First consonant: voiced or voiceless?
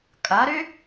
voiceless